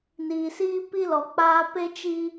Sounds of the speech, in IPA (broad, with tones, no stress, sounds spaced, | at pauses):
n iː˨ s iː˦ p i˦ l ɔ˨ k͡p aː˦ p e˦ t͡ʃ i˦